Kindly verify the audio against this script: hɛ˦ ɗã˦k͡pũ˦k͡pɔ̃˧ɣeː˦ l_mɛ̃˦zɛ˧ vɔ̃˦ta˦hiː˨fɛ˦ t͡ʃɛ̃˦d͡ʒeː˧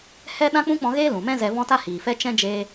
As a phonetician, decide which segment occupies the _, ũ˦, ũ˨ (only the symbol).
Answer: ũ˨